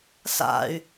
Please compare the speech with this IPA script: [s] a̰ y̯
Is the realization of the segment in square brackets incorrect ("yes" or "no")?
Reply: no